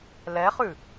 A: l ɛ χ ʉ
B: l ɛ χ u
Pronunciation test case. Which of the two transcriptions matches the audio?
A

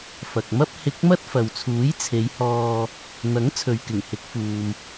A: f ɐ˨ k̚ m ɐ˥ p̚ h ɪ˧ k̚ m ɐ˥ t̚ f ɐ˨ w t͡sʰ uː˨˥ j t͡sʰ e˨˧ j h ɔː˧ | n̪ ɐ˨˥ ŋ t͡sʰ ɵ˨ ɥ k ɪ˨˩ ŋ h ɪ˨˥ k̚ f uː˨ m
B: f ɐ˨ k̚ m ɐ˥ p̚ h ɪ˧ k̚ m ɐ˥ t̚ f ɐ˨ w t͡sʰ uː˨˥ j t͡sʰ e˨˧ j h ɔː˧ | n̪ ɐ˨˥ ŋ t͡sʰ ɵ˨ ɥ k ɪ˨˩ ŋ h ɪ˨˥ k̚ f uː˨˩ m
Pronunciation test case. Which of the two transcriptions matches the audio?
A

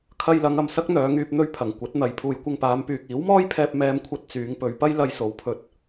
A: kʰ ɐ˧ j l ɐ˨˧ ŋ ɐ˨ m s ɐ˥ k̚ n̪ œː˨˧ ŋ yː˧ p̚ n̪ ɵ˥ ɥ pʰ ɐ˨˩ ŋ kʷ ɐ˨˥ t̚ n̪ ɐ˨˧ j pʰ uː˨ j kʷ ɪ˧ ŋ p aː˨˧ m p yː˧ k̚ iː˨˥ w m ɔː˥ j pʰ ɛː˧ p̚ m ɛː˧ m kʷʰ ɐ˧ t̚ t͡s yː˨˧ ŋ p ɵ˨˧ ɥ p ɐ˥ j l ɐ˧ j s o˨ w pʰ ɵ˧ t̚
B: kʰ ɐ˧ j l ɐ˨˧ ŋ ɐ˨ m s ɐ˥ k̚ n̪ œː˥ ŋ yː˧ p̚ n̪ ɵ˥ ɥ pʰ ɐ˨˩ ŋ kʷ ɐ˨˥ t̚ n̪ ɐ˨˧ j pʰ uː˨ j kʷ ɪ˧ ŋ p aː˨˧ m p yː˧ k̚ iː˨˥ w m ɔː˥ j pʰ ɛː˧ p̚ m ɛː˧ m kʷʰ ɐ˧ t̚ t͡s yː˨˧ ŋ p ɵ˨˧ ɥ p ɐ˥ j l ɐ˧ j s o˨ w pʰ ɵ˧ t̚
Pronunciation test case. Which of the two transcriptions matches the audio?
A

